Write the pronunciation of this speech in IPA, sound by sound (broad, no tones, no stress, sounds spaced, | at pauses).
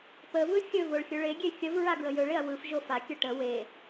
p ə v ɯ xʲ ɵ v o ɭ xʲ ɵ ɭ e ɡʲ e xʲ ə v ɹ a ɡ ɹ ə j ɵ ɭ e ɐ̯ w ɯ f ʒ o f a kʲ ə ʈ ə w e